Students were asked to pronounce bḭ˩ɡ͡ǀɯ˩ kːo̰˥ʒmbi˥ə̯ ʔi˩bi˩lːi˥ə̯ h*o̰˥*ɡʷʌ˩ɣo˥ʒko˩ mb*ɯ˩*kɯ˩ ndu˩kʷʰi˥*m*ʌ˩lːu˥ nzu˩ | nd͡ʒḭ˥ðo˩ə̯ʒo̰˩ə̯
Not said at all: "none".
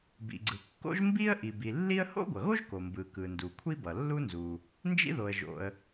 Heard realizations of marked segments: o̰˥, ɯ˩, b

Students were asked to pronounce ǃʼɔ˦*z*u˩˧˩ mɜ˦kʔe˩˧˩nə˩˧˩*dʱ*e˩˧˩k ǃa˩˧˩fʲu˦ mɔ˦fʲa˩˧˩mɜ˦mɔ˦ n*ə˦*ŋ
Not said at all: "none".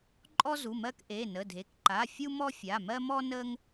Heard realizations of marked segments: z, dʱ, ə˦

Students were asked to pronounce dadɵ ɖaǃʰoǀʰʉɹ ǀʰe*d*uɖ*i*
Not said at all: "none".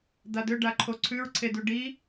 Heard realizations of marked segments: d, i

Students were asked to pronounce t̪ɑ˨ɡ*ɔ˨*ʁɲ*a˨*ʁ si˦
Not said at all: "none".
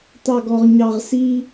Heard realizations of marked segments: ɔ˨, ɑ˨

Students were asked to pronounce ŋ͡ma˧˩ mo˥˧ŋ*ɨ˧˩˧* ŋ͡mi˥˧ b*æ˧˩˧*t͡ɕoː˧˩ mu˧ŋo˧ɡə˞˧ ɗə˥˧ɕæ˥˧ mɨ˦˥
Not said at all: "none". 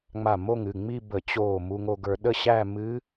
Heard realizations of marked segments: ɨ˩˧˩, ə˧˩˧

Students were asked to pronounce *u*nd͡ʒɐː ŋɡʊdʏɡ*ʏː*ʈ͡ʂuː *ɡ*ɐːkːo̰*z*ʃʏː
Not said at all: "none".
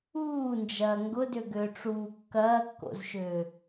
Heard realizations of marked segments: uː, ʏː, kː, z

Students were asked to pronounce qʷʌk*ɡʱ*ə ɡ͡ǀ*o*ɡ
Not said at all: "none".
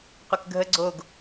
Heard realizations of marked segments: ɡʱ, o

